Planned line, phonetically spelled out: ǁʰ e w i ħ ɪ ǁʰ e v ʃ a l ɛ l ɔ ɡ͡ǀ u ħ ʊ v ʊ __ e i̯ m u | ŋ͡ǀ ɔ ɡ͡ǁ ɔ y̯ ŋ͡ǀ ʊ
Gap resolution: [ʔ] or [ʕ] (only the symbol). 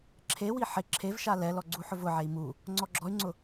ʕ